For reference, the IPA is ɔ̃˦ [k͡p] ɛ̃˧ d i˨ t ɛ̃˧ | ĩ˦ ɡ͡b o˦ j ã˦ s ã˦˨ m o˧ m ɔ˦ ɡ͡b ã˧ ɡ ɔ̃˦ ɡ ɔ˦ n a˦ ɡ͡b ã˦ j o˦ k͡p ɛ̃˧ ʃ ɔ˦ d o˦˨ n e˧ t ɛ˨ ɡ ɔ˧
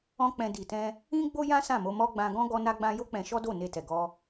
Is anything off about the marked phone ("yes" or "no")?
no